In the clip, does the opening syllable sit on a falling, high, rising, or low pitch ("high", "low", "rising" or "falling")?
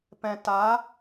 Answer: low